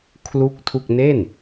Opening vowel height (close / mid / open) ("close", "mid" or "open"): close